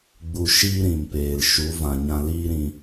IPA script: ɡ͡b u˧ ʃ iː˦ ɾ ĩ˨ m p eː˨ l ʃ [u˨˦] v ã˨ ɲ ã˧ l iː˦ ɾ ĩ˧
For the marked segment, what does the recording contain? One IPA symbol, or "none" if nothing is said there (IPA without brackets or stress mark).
u˨˦